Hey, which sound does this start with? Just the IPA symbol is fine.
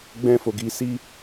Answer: ɡ͡b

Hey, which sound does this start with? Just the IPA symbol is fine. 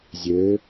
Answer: zʲ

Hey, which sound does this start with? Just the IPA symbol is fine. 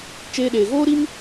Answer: t͡ʃ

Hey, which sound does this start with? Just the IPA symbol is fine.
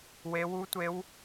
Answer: w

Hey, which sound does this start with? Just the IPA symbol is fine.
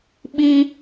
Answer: ɓ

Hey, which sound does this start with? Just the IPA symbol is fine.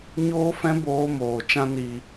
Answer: ɲ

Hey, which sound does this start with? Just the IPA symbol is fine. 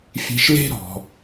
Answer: fʲ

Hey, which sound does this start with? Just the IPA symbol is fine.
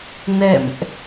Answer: n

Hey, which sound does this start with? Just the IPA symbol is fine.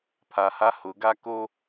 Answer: pʰ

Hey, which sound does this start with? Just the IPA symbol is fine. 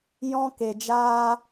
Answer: j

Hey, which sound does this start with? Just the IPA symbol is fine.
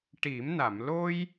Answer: ʈ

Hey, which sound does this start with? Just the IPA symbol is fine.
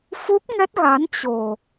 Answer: f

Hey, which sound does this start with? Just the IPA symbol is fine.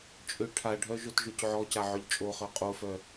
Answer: t͡ʃʼ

